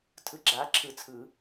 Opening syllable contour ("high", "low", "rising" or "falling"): rising